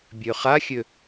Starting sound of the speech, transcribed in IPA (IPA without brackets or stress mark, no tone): bʲ